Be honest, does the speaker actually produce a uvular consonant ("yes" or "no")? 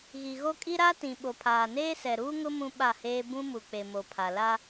no